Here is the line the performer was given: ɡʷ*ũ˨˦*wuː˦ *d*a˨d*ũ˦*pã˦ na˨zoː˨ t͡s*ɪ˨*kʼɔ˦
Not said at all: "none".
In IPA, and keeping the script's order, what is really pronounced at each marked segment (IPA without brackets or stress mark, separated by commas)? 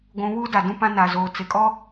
ũ˨˦, d, ũ˦, ɪ˨